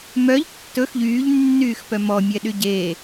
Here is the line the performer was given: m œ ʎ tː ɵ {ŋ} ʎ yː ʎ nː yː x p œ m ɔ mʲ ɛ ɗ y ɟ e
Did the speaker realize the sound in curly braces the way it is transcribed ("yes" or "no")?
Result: no